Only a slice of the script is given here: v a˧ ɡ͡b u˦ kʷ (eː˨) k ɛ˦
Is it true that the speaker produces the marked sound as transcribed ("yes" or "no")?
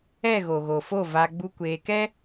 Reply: no